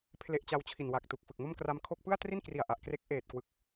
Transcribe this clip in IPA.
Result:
pʰ l e˦˥ ʔ t͡ɕ a˦˥ w t͡ɕʰ i˨˩ n w a˨˩ k̚ t u˨˩ k̚ f ɯ˨˩ k̚ m o˥˩ m k r a˧ m kʰ o˥˩ k̚ p ɯ˥˩ a̯ t r i˥˩ n k r i˨˩ a̯ ʔ a˨˩ ʔ k r e˦˥ k̚ ʔ eː˨˩ t̚ k w ɯ˨˩ k̚

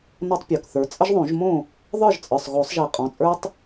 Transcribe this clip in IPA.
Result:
n ɔ˦ tˤ pʲ ə˞˩˧˩ k θ ə˞˩˥ t͡sʼ ə˦ ʒ ðˤ õ˨˩˦ ʒ m õ˥˩ | ðˤ ə˞˥˩ ʒ t͡sʼ ə˞˩˧˩ sˤ ɣ o˨˩˦ sˤ ʒ i˨˩˦ qʼ ɔ̃˩˧˩ t͡sʼ ə˞˦ tˤ

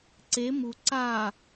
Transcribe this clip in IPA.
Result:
ǀ e m u ǀ a

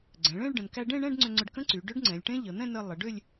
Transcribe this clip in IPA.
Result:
ɡ͡ǀ ɛ̃˩˧ ɭ ẽ˥˧ ɭ ɖ ə̃˩˧ n k æ˧ ɖ ẽ˥˧ ɳ ɛ̃˥˧ ɖ ŋ͡ǀ ʏ˧ ŋ͡ǀ ʏ˧ ɖ k ə̃˦˥ ǀ y˩˧ ɖ ʏ˦˥ ɖ ŋ͡ǀ ɛ̃˩˧ lʲ ʈ ẽ˦˥ ʎ ə˩˧ n̪ ɛ̃˥˧ n ə˧ lˠ ə˩˧ ɖ ʏ˥˧ lʲ

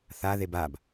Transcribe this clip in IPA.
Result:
θ a ð e b a b

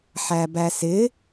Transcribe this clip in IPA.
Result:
ħ æ b æ s ɪ

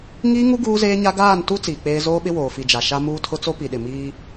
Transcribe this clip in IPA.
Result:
ŋ iː˦ ŋ u˦ ɡ uː˦ z eː˦ ɲ a˦ ɡ aː˦˨ n t u˦ t͡s iː˨ k͡p eː˦ z oː˦ ɓ ɪ˦ w oː˨ f i˨ d͡ʒ a˨ ʃ a˦ m uː˦ tʰ ʊ˦ t͡s o˦ p i˨ ɗ ɪ˨ m iː˦

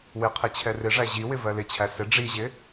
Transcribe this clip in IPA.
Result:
w ɪ qʰ e t͡ɕʰ ɛ r ɪ ʐ æ ʑ i w ɪ v ɜ l ɪ t͡ɕʰ æ s ɪ ɖ͡ʐ i ʑ ɪ

